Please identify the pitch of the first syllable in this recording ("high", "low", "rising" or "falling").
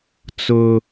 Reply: high